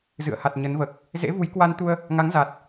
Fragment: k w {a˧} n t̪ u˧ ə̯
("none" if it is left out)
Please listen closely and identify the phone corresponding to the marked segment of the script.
a˧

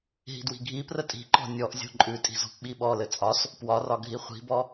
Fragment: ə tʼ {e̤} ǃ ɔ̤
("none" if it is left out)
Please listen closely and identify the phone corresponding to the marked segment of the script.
i̤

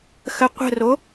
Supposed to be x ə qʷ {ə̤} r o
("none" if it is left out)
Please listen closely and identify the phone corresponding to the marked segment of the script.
ə̤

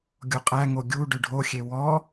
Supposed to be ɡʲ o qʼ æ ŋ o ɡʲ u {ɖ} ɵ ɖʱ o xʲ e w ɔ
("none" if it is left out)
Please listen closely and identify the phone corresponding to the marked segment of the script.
ɖ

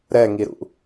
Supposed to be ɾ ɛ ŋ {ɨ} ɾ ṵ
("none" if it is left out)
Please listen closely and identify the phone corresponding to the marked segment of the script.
i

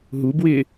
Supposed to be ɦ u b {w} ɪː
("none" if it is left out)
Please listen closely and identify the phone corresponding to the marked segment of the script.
w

